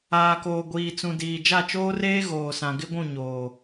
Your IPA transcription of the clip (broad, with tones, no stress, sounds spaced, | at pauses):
aː˨ k oː˨ ɡʷ iː˨ t͡s ũ˨ d iː˨ d͡ʒ a˦˨ t͡ʃ oː˦ r eː˦ ɣ oː˨ s ã˨ ɡ ɪ˦ ɡʷ ũ˦˨ ɲ oː˨